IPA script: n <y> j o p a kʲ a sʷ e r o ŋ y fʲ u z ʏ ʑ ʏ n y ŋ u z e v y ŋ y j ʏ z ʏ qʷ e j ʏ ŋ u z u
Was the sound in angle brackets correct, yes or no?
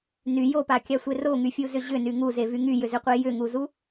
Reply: yes